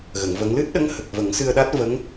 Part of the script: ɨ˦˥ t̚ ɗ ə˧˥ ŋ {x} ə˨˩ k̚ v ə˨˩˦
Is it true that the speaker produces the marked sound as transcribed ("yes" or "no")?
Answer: no